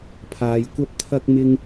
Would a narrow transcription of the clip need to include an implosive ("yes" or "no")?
no